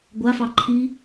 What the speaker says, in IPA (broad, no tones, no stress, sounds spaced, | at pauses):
ɡʷ a f ɑ ǃʰ i